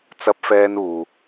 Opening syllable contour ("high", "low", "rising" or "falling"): high